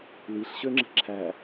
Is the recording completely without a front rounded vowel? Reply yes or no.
no